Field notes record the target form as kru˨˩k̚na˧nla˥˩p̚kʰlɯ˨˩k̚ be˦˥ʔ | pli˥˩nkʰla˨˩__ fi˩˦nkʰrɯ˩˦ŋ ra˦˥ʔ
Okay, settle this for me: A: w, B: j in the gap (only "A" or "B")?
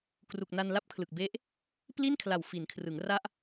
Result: A